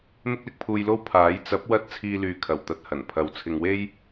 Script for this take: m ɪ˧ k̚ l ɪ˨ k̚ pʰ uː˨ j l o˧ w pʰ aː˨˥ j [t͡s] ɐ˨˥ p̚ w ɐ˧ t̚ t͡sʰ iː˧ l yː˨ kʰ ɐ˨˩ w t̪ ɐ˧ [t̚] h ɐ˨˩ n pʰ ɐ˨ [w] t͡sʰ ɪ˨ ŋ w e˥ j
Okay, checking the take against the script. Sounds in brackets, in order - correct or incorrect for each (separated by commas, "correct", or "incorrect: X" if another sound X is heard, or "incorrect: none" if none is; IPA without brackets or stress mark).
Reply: correct, correct, correct